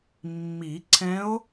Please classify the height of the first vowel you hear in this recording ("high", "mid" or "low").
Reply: high